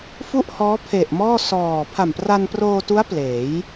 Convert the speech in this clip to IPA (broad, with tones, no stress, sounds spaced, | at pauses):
f u˥˩ ʔ h ɔː˦˥ pʰ e˨˩ ʔ m ɔː˥˩ s ɔː˨˩ pʰ a˨˩ m p r a˧ n p r oː˧ t u˦˥ a̯ p l eː˩˦ j